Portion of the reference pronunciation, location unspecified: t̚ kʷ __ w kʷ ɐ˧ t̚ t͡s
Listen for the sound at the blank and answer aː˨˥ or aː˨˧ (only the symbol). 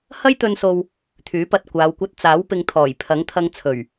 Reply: aː˨˧